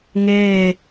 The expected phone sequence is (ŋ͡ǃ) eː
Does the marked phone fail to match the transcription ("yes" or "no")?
yes